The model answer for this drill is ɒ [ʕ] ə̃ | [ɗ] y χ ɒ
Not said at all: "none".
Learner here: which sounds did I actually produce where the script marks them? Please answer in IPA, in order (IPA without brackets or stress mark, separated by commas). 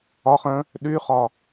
χ, ɗ